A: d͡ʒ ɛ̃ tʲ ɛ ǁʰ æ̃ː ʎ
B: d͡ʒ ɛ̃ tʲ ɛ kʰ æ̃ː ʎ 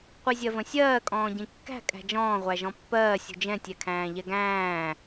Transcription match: B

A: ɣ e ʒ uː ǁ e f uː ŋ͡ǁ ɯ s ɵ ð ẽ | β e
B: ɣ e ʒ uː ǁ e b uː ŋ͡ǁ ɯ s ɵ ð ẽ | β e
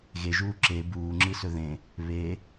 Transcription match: B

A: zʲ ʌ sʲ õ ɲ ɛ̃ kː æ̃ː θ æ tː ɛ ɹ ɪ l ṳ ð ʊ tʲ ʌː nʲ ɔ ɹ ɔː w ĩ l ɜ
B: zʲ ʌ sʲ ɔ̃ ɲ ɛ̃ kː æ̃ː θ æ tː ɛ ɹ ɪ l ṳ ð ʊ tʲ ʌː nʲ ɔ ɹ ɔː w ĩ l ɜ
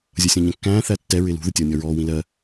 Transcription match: B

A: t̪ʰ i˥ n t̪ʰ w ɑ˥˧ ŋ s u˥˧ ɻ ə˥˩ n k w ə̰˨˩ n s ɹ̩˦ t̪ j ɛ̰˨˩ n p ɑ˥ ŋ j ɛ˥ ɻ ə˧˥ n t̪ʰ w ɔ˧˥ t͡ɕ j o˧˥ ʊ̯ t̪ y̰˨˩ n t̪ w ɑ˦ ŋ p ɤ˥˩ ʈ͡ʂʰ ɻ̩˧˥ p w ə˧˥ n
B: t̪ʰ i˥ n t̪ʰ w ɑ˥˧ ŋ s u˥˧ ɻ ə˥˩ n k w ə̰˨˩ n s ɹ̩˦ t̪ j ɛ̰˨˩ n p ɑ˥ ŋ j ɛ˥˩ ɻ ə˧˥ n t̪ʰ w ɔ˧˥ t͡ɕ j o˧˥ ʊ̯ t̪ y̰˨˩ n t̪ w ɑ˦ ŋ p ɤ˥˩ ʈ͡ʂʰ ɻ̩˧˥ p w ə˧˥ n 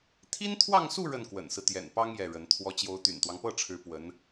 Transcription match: B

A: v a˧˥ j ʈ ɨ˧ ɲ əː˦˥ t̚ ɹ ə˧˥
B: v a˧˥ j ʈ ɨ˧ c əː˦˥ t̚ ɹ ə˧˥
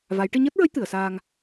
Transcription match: A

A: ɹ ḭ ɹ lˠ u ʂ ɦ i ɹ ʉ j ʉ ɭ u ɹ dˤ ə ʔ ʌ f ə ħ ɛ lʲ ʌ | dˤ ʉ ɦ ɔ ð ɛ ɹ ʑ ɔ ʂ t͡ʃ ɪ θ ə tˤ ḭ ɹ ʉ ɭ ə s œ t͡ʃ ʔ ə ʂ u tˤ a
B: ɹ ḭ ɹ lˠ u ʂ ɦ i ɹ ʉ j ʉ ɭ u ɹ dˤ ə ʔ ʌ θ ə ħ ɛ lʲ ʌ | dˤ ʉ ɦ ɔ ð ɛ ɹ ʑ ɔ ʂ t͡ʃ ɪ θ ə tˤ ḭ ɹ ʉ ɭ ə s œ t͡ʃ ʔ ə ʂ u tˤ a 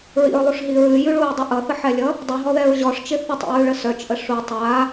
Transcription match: B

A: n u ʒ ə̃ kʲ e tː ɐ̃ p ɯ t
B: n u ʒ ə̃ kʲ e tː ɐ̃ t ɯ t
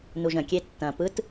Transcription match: A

